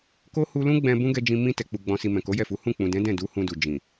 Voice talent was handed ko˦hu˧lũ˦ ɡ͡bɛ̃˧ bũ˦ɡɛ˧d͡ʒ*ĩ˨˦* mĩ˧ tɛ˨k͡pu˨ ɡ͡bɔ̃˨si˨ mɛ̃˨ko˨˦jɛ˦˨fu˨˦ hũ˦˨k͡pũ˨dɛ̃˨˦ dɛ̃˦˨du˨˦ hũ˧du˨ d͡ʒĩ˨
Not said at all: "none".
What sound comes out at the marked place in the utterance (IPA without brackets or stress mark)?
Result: ĩ˧